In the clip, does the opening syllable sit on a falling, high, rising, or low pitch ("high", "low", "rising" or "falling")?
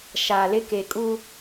low